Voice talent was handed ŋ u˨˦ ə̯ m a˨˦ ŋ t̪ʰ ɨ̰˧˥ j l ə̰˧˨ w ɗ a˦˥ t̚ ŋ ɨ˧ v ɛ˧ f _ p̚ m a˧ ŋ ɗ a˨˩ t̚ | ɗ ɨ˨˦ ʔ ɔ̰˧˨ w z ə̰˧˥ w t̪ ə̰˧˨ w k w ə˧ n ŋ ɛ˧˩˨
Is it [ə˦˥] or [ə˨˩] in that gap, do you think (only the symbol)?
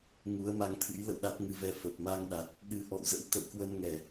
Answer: ə˨˩